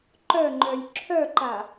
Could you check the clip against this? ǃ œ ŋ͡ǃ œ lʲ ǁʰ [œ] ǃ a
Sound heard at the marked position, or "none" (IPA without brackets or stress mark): œ